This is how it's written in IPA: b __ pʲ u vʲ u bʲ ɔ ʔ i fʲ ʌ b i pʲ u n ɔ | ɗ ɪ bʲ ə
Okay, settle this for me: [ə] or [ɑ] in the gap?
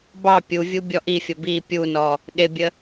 ɑ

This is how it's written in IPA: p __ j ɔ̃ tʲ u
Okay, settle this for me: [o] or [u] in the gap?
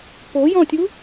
o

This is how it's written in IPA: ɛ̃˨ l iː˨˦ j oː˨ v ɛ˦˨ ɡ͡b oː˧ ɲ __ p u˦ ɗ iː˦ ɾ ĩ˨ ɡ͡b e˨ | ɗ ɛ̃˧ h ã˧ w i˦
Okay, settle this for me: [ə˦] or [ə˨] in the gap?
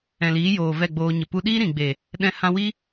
ə˨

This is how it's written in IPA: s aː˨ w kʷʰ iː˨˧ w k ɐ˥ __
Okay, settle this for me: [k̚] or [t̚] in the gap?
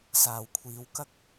k̚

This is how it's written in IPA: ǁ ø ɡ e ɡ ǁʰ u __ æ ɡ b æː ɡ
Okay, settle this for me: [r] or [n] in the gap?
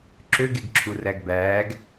r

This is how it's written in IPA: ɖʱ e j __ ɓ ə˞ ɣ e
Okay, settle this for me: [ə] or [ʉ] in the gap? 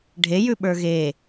ʉ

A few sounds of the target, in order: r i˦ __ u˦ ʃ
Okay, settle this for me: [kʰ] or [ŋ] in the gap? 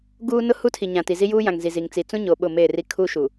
kʰ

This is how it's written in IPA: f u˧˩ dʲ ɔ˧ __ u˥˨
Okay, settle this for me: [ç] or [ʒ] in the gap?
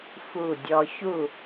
ç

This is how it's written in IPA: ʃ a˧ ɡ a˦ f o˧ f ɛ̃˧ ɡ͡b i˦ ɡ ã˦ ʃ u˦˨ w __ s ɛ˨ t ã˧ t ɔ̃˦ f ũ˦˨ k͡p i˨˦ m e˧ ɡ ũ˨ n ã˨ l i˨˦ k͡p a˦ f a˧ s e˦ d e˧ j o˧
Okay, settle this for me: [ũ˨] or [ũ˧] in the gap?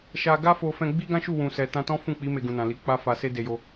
ũ˨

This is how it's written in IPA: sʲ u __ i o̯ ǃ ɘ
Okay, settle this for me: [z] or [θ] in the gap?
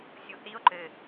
θ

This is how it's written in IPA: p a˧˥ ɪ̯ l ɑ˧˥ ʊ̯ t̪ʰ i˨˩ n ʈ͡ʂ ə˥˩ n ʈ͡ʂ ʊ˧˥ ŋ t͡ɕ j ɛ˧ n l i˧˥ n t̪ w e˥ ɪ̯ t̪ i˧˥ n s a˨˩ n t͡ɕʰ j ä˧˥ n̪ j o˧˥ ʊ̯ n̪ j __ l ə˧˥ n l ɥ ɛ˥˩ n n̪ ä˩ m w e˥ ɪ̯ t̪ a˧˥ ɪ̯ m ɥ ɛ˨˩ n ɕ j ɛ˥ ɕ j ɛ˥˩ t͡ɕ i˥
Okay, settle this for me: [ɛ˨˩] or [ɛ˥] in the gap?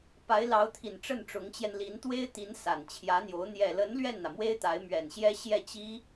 ɛ˨˩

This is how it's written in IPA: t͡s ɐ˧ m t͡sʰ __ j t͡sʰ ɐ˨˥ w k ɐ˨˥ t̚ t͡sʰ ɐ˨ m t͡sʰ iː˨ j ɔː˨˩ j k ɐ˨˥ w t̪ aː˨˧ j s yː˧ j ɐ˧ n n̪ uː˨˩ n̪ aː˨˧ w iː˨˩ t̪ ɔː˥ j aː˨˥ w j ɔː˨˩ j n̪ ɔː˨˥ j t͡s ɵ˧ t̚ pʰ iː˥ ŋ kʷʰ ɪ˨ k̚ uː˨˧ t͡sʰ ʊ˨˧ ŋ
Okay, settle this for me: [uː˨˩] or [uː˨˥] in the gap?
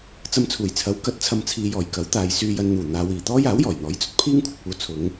uː˨˩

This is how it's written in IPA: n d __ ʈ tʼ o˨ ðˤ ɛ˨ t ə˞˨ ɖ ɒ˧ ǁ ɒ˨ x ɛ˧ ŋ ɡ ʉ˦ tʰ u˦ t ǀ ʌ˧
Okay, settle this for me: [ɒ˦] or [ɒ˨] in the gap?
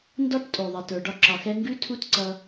ɒ˦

